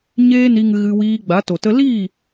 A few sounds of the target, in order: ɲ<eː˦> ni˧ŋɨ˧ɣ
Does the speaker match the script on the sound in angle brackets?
yes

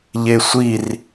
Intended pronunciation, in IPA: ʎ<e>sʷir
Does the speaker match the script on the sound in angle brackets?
yes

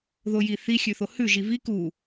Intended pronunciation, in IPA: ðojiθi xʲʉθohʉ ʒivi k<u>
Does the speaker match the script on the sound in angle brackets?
yes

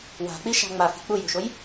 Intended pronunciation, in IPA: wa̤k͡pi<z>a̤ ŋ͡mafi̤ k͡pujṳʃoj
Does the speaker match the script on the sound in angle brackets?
no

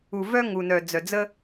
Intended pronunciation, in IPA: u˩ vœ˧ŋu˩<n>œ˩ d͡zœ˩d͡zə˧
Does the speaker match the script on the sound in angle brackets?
yes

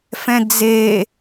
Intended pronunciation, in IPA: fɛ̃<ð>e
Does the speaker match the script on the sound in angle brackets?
no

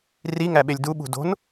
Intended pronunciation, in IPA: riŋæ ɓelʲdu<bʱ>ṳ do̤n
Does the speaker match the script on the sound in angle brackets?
no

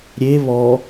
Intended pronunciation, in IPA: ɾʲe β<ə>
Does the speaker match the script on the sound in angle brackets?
no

